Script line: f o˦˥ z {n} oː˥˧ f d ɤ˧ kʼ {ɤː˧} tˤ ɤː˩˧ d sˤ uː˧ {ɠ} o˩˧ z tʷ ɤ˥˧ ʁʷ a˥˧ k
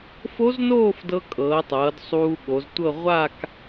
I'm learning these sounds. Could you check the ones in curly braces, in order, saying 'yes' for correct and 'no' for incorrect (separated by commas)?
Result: yes, no, yes